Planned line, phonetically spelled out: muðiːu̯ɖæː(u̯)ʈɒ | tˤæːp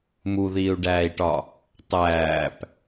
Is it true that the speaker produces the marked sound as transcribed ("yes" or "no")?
no